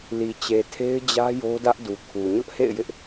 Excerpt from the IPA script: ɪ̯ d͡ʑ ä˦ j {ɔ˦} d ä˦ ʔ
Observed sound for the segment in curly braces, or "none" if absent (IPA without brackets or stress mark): o˦